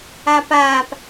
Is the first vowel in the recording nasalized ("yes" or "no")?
no